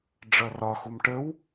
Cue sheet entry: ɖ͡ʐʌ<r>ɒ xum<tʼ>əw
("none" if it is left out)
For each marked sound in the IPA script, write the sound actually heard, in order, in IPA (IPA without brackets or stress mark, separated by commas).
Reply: r, ʈ